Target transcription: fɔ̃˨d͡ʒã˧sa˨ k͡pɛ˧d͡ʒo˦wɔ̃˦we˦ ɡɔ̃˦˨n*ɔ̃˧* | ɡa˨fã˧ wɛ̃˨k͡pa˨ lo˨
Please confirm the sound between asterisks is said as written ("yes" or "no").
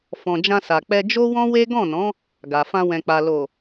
no